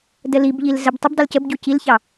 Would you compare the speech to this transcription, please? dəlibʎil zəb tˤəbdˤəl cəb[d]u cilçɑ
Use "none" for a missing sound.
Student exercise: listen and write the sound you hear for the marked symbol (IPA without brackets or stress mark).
ɟ